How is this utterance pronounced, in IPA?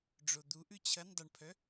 ɖ͡ʐod̪u ʔʉt͡ɕʰɐn dˤɐɳpʰœ

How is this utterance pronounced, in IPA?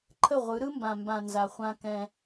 ǃʰə˦˨ʁʷɯ˨˦ ɾɯ˦mbã˨mbã˨ nza˨χʷã˦kɛ̃˦

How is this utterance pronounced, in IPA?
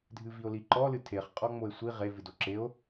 dʱɨvio̯liǃɔ lɨtʰeχ qʼɔŋ͡moe̯sʷi ʁe vɨdoǁeo̯

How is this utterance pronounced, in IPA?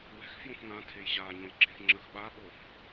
wɛ̤x fjõfŋã tʰejɕaɲõjɡ͡ǁẽx ŋ͡ǁəx ɓaɓof

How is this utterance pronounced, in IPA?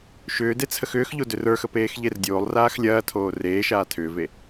ʃʏː det͡sʰəxʏːxʎo dʏrə˞xə peːxʎerdʲoːlˠraːx lʲɐːtʰoː reːʃaː tʰʏːve

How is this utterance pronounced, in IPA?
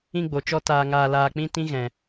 ĩ˧ɡ͡bo˨t͡ʃɔ˧ taː˧ ŋaː˧ laː˧k͡pĩ˦tĩ˦ ɣɛ̃˧

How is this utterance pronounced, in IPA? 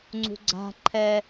ŋ͡ǀṳɡ͡ǀa̤ ǃʰɛ

